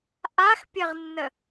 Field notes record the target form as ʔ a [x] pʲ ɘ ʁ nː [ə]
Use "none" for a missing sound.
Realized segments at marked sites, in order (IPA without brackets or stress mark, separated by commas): x, ə